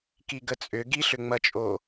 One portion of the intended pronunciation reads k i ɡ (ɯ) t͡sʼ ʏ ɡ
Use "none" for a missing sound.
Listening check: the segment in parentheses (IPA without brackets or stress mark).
ə